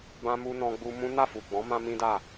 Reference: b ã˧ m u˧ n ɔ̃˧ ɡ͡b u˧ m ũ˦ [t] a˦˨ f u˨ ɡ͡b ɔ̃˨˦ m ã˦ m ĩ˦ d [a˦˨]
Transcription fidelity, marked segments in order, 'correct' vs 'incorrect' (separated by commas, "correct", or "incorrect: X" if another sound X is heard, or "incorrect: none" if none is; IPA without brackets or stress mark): incorrect: n, correct